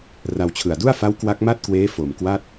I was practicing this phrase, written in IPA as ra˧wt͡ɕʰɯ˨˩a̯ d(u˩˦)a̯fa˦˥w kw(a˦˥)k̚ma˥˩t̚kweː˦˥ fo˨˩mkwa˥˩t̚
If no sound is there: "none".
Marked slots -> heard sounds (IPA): u˥˩, a˦˥

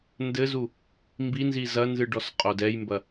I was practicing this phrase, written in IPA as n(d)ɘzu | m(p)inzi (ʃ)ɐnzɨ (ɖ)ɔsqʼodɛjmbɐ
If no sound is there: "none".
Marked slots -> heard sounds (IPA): d, b, z, ɖ

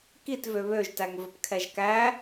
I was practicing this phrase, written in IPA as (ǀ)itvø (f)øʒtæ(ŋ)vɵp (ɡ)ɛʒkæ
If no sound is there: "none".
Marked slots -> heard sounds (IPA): k, β, ŋ, kʰ

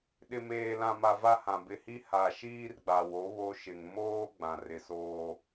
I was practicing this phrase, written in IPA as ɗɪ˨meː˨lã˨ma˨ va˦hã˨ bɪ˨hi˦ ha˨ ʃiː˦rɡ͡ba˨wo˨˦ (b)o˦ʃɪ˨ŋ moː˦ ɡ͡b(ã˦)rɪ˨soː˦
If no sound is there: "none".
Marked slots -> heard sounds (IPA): β, ã˨

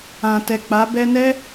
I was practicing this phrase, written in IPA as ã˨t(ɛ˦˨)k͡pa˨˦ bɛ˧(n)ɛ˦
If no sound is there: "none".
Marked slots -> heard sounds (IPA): ɛ˨, n

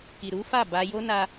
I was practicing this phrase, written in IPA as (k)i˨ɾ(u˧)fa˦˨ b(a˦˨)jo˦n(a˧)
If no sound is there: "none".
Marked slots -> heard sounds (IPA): k, u˨˦, a˧, a˧

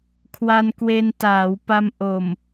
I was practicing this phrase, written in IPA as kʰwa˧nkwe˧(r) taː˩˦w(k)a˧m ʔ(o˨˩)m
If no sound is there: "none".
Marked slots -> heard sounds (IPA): n, p, o˨˩

